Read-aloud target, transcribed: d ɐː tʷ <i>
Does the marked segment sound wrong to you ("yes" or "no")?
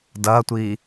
yes